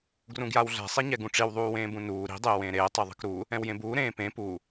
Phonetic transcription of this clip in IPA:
ɡ r ũ ɡ j a w ɮ ɛ̤ sˤ e ɲ ɛ ɡ ũ ʈ͡ʂ i w ðˤ uː w ẽː b ũ n uː ɾ i̤ dˤ eː w ẽː ɾ eː tˤ e ðˤ i̤ k ɾ u | ɛ̃ w j ẽ b uː ɾ ẽː p ẽ p u

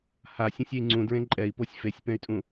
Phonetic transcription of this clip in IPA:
h a sʲ ẽ sʲ ɛ i̯ ŋ͡ǀ ũ d ɹ ẽ ǃʼ ɛ i̯ p o sʲ f e sʲ p ɛ̃ y̯ tʼ ũ

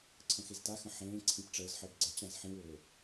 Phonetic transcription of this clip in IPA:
ǀʰ ə̃ x e z t a x ə̃ ħ ẽː ǀʰ ĩ p ʈ͡ʂ əː z ħ əː b ɡ͡ǀ ə t͡ɕ ã z ħ ĩ w ʊː

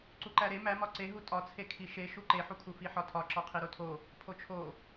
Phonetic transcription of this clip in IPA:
ǀ u ǃ æ ɾ e m æ m ɒ ǀ e ɦ u tʼ ɒ t͡sʰ e kʰ i ʃ e ʃ u ǃ e ħ u kʰ u f i ħ ɒ tʰ ɒ ǁ ɒ qʰ i ɾ o tʰ o | pʰ o t͡ʃʰ o

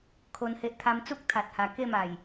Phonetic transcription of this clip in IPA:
kʰ o˧ n h e˦ ʔ t̪ʰ a˦ m t͡s u˦ k̚ t̪ʰ a˨ t̚ h a˨˩ k e˥˧ m a˨˩ j

